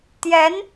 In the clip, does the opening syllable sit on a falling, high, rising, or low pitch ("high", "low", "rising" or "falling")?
rising